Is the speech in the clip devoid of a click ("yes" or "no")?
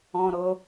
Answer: yes